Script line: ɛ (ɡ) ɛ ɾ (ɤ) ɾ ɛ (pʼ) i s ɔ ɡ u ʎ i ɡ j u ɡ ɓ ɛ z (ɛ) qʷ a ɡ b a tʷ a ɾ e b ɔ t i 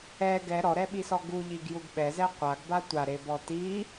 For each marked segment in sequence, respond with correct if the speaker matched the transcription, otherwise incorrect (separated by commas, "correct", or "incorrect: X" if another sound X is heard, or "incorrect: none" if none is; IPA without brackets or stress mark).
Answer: correct, incorrect: ɔ, incorrect: ɓ, correct